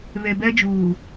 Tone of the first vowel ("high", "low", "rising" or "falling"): low